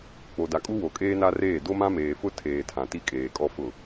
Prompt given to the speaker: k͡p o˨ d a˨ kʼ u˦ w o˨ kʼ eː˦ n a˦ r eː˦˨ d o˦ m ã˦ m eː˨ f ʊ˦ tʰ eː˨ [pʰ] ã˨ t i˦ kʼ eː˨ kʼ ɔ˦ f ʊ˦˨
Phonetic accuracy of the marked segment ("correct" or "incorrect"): incorrect